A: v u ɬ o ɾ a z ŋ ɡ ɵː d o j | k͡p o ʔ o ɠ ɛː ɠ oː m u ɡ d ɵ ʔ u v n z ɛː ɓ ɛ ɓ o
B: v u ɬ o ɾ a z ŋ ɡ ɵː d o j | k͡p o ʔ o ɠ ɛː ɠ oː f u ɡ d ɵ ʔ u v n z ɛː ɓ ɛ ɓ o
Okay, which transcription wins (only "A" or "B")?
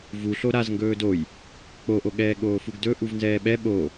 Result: B